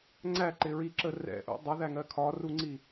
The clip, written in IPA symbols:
ŋ͡ǀæǃɪɹiǁə rɛ̰ʔṵ dˤʌðæŋɜ kʰɒruŋ͡ǀi

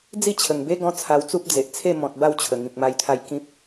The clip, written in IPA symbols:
d͡zi˥˧t͡ɕʰə˨˩ŋbe˦ɡɔ̃˧ t͡sʰa˧wt͡su˦p̚ d͡ze˨ʔt͡sʰe˥˧ mɔ̃˨t̚ ba˥˧wt͡ɕʰə˨˩ ŋĩ˨k̚ma˧jt̪ʰa˧j kĩ˦p̚

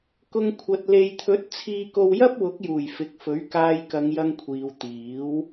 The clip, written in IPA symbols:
kʊ˧ŋ kʷʰɐ˨t̚ le˨jt̪ʰɵ˨˥t̚ t͡sʰiː˧ko˧w jɐ˥p̚wʊ˨˥k̚juː˨˩j fɪ˨k̚fɵ˨˥ɥ kaː˧jkɐ˨˧ŋjɐ˧ŋ kʷʰiː˨wt̪iː˨˥w

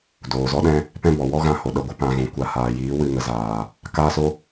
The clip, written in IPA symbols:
doː˨zɔ˦ɗɛ̃˦ | pɛ̃˦bɔ˨ wɔ˦ɣã˧ho˨ ɗə˧ɡʷə˧ pã˧ɣũ˨kʷa˧ haː˨jiː˨˦ wɨ˦˨ŋə˧zaː˨ | kaː˦so˦

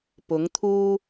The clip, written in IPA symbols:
pʊ˨˥ŋt̪ʰuː˥

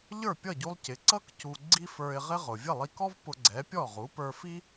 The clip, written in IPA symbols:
ʎə˞˥˩pʲʌ˥˩ɟu˧lˠ cɪ˩˥ǀʌ˥k cu˧ɡ͡ǀi˥fə˞˧ɪ̯ʁɪ˥ ʁʊ˩vʲə˥˩lˠi˧kɔ˥v pʊ˧ɡ͡ǀɛ˩˥ pʲɔ˥˩ʁu˩˥ pə˞˧ fi˥

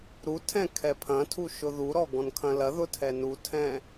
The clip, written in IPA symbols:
ɾutʰɛ̃ kʰɛpʰɐ̃tʰu ʃʊðuɾɔ ɡɔ̃nkʰɐ̃lɐðʊ tʰɛnutʰɛ̃

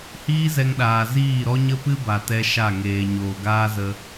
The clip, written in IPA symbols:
hiː˦zɛ˧ŋɗaː˨ ziː˦˨ɾɔ˦ɲə˦pɨ˦ ba˨tɛ˧ ʃa˦˨ŋeː˨ ɲoː˨ɡaː˦zə˧

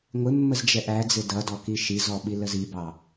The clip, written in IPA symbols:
ŋʷɪmːəz d͡ʒɛʔæd͡zɪ dʌdɔ kiʃizɔ ɓiləzibɑ

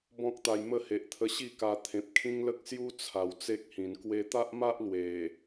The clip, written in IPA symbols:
bɔ̃˦k̚t̪a˧jmə˥˧ he˨ʔt̪ʰə˧ɕi˥˧ ka˧ t̪ʰẽ˨p̚ kʰĩ˦ŋlə˦k̚ sju˦t͡sʰa˨˩w t͡se˦k̚hĩ˨˩n kwe˧t̪a˦ʔma˦ʔ lwe˨˩

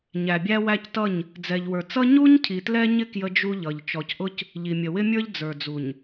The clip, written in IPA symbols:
ɲæ˨bʲæ˦wæ˦ctʌ˦˨ɲ | d͡zɛ˨ʎwə˞˨t͡sʌ˦ ɲu˦ɲ cʰi˨tlɛ˦ɲɪ˦ kjə˦d͡ʒu˦ʎʌ˨ʎ t͡ʃɔ˨cʔʊ˦c | ʎi˨mʲə˨wɪ˦mʲə˞˦ʎ d͡zə˞˨d͡zu˨ɲ

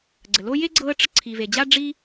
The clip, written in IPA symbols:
ɡ͡ǀə˩lo˦je˥ɡ͡ǀɤ˦ə̯ ʈ͡ʂə˦ǀʰi˨ve˨d͡ʑa˥ ɖ͡ʐi˦

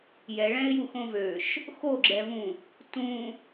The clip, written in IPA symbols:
jɛɭɛ̃ɪ̯juxõ vøʃ | xoɡ͡ǁɛvũ | tũ

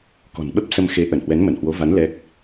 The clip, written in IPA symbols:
kɔ̤˨˩nɓə˦˥p̚sə˧mxe˨˦ ʔə˧˩nhwɛ˨˦nmə˧˩nhwo˨˦ va˨˦n lɛ˦˥k̚

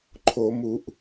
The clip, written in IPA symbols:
ǃʰo˧˩˧mu˧˩˧ʔ

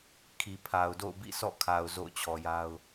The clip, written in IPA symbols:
kʰi˨pʰa˨ʊ̯do̰˦˨ʊ̯ bḭ˦˨sɔ̰˦˨kʰa˨ʊ̯ zo̰˦˨ʊ̯t͡ɕʰɔ˨ja˦ʊ̯

